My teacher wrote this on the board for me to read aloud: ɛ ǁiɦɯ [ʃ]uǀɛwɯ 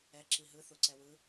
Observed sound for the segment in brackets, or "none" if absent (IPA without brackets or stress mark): θ